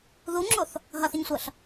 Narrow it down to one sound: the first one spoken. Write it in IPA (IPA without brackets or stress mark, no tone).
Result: ð